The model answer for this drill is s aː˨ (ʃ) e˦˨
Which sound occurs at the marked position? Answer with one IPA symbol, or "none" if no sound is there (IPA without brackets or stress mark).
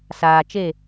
t͡ʃ